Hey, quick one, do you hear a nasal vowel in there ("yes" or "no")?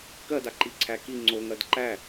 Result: no